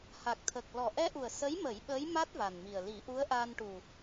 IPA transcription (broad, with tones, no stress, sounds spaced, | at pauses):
h a˨˩ k̚ t̪ʰ ə˨˩ k̚ l ɔ˨˩ ʔ ɛ˧ ʔ u˨˩ ə̯ s ə˧˥ j m ə˨˩˦ j ɓ əː˧˥ j m a˦˥ t̚ v a˨˩ n m i˨˩ ə̯ l i˨˩˦ ʔ u˧˥ ə̯ ʔ aː˧ n ʈ u˨˩